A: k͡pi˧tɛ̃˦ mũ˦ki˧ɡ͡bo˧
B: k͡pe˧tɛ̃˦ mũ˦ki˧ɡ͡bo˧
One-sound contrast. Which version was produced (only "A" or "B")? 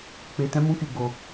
B